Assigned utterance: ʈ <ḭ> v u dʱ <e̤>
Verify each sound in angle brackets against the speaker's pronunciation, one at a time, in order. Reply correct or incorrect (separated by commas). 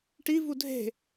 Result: incorrect, correct